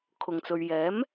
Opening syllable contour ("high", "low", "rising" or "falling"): low